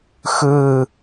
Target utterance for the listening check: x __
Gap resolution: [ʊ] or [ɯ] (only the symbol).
ɯ